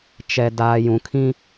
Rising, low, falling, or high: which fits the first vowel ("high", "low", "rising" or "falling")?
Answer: low